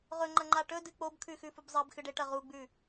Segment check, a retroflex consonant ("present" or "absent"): present